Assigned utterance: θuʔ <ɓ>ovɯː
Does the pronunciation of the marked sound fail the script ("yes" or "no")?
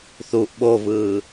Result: no